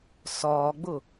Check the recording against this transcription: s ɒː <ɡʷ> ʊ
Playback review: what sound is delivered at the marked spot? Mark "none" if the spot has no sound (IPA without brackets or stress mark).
ɡ͡b